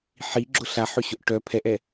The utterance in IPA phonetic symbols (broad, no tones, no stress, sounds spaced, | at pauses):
ħ i ɡ͡ǁ ʊ ɬ a ħ ø ɕ ʊ ʔ ʈ œ pʰ ɛ ʔ ɛ